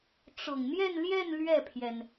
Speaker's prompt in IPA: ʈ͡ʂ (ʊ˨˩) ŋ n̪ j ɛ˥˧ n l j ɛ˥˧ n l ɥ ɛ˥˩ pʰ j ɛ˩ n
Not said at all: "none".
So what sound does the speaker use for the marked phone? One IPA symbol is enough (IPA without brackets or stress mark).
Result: ʊ˨˩